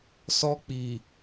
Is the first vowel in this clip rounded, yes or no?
yes